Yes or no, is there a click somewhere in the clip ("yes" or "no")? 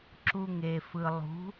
yes